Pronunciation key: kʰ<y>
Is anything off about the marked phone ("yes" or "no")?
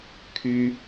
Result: no